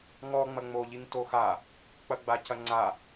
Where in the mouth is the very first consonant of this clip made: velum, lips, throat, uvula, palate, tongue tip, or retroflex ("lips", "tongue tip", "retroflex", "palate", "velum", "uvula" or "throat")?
velum